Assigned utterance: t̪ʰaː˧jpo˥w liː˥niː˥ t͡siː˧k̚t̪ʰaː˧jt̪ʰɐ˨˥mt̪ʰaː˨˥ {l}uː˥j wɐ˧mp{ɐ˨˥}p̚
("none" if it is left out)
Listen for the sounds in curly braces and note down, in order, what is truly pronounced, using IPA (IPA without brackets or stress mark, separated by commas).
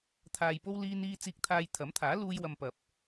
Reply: l, ɐ˨